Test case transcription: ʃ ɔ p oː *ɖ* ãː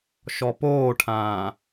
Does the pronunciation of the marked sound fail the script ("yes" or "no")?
yes